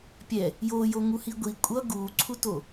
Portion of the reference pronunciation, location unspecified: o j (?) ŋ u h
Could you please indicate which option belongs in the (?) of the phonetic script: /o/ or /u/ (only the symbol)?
o